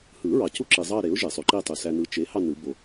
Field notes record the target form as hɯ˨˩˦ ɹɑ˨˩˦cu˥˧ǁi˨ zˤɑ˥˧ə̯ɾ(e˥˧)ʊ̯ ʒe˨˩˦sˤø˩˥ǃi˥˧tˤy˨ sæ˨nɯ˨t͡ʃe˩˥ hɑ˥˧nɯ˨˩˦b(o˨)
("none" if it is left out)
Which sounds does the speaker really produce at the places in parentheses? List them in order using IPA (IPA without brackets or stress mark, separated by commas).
e˩˥, o˨